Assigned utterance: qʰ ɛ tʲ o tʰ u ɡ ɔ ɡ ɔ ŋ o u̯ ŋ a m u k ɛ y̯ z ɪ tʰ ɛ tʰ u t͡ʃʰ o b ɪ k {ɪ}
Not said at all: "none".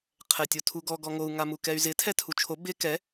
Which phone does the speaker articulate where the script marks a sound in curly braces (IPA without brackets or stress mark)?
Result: ɛ